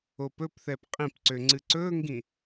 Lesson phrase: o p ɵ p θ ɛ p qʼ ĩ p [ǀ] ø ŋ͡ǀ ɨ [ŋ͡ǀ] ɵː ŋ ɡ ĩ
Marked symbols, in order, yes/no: yes, no

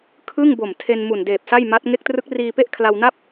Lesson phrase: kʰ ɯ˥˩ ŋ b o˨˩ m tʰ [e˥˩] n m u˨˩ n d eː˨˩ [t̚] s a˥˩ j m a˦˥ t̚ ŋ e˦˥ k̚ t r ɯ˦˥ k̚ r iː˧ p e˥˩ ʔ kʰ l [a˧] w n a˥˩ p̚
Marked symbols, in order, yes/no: no, no, yes

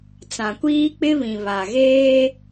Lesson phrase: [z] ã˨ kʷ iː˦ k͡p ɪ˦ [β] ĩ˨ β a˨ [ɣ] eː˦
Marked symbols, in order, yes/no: no, yes, yes

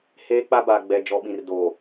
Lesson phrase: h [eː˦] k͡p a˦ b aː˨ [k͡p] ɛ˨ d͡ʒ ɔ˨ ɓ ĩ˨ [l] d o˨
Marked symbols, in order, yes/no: yes, no, no

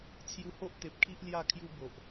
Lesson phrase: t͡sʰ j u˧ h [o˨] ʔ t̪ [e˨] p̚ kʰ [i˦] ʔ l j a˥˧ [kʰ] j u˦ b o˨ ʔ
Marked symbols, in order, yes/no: no, yes, yes, yes

